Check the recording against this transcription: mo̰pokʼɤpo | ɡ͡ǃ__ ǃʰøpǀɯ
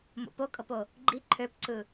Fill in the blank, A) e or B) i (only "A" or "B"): B